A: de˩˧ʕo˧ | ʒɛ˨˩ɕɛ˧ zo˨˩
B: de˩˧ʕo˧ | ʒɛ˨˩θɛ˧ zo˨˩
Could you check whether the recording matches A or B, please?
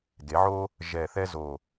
B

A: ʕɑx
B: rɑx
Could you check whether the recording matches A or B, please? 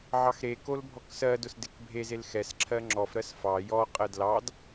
A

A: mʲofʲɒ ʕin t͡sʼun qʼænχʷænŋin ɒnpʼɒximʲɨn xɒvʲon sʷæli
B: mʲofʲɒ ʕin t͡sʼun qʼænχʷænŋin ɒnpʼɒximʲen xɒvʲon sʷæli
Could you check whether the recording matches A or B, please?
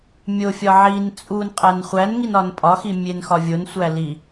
B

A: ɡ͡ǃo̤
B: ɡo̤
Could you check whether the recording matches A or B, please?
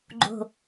A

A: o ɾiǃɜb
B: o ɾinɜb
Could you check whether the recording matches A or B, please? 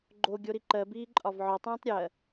A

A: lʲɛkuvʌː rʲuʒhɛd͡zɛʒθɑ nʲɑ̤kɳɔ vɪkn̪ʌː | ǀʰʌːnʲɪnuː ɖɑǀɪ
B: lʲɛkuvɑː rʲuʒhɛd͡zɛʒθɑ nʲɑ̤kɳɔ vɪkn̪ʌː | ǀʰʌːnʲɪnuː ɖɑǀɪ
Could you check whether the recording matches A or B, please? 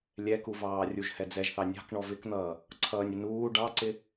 B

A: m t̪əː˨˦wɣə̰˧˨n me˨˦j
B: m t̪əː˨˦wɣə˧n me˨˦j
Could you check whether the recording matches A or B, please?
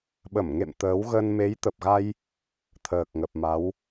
B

